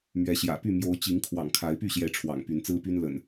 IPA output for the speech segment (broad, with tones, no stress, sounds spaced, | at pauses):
m ɥ ɛ˨˦ ɕ j ä̰˨˩ p y˥˨ m j o˨˦ ʊ̯ t͡ɕ i˨˦ ŋ kʰ w ɑ̰˨˩ ŋ kʰ a˨˦ ɪ̯ p y˥˨ ɕ j ɛ˨˦ ʈ͡ʂʰ w ɑ̰˨˩ ŋ p y˨˦ n t͡s ɹ̩˦ p y˦ n l ə̰˨˩ n